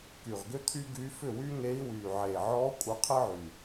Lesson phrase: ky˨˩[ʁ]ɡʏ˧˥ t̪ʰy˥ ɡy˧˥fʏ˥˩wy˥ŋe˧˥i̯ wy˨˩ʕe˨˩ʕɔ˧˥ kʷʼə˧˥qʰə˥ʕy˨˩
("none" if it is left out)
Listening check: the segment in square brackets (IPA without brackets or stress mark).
ʁ